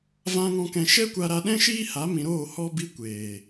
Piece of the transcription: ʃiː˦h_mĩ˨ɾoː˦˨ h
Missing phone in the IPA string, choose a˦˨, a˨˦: a˨˦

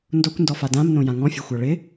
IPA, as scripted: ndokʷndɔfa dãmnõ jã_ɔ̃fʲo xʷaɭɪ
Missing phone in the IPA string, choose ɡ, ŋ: ŋ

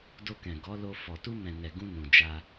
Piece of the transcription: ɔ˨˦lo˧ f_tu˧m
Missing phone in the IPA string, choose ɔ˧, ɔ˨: ɔ˨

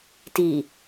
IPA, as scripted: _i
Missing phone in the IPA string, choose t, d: t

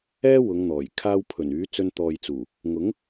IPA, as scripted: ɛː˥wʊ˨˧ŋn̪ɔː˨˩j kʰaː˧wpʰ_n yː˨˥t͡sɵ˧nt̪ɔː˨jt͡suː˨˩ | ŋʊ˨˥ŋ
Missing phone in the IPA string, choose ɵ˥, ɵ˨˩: ɵ˨˩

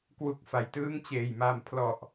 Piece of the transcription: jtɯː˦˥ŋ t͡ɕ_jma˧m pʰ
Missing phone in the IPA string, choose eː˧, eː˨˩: eː˨˩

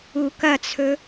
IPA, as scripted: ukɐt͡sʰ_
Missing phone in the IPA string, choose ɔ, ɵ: ɵ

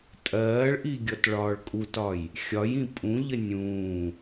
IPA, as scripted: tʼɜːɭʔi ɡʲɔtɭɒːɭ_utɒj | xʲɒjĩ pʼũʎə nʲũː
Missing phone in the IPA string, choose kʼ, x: kʼ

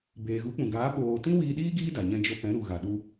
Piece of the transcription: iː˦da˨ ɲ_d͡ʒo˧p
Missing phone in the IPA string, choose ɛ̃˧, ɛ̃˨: ɛ̃˧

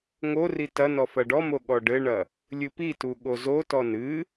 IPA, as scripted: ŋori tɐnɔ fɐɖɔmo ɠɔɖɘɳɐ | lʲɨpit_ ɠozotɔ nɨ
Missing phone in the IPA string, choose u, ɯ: u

